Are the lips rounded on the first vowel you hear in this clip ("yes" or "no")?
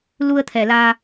yes